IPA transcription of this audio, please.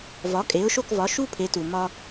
v ɒ˩˥ kʼ e˩˥ ʊ̯ ʃ o˥˩ k v ɒ˩˥ ʃ u˥ pʰ e˩˥ t u˩ m ɒ˧

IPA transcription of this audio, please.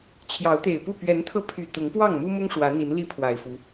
t͡ɕʰ j ɑ˨˦ ʊ̯ t̪ e˨˩ ɪ̯ p u˥˨ p ɥ ɛ˨˦ n t̪ʰ ɤ˧ pʰ y˨˩ t̪ ʊ˨˦ ŋ p w ɑ˥˨ ŋ m u˦ m ʊ˦ ŋ ʂ w ä˨˦ n̪ i˨˦ n l i˦ pʰ w a˨˩ ɪ̯ f u˨˦

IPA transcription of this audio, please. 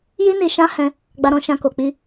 j i˦ n i˧ ʃ ã˦ h ɛ̃˧ | ɡ͡b a˧ ɾ ɔ̃˧ ʃ ã˧ k o˨ k͡p i˧

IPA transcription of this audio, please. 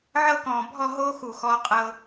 ʕ ɤ˥˧ k ɔ̃ː˧˩ bʱ ɔ˥˧ ɦ oː˥ x u˧˩ x ɔ˧ qʼ ɤ˧

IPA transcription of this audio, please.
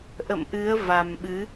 ʔ ə̰˧˨ m ʔ ɨ˨˦ ə̯ v a˨˩ m ɓ ɨ˨˦

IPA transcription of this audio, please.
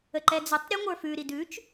ə ǃ ɛ d͡z ʉ tˤ ɾʲ ɛ ŋʷ ə˞ f ʉ ɾ i d ʉ t͡ʃ

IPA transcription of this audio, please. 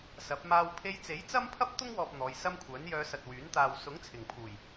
s ɐ˨˥ p̚ m aː˧ w pʰ e˧ j t͡s e˨˥ j t͡s ɐ˥ m pʰ ɐ˥ p̚ t̪ ʊ˥ ŋ w ɔː˨ p̚ n̪ ɔː˨˧ j s ɐ˥ m kʷʰ œː˨˥ n j œː˧ s ɐ˨ t̚ w yː˨˥ n t̪ aː˨ w s ʊ˨˥ ŋ t͡sʰ ɪ˨˩ ŋ pʰ uː˨˩ j

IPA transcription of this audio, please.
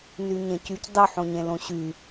n y ɲ ẽ c y c dˤ y ħ õ ɲ ẽ l õ ɕ y

